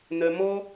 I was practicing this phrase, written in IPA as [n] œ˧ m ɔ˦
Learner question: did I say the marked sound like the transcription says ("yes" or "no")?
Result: yes